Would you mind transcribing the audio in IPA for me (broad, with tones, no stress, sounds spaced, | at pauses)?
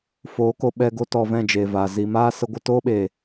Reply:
f oː˨˦ k o˧ ɓ ɛ˧ ɡ o˧ t ɔ˨ v ɛ̃˦˨ d͡ʒ eː˨ v aː˨ z i˨ m aː˦ s ə˧ ɡʷ ə˧ t oː˦ ɓ eː˨